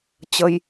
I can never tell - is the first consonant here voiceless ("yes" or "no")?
yes